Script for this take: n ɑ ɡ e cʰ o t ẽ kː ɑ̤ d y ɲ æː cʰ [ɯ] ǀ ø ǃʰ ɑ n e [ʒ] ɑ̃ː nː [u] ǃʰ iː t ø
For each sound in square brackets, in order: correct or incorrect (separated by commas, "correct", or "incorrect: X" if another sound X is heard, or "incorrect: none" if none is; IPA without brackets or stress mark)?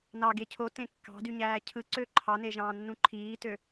correct, correct, incorrect: ũ